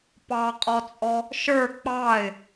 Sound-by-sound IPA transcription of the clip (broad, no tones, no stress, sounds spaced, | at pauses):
p ɑ qʼ ɔ t͡sʼ ɔ | ʃ ə˞ k͡p ɑ ɪ̯